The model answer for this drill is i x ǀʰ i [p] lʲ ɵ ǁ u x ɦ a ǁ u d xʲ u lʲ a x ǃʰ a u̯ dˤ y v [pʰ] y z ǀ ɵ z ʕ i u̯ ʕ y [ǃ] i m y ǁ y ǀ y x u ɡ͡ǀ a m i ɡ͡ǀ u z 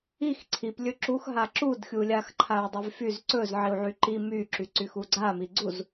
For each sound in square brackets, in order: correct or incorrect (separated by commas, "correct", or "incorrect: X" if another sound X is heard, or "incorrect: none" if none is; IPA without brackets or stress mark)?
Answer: correct, incorrect: f, correct